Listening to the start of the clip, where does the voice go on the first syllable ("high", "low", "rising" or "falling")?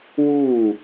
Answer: falling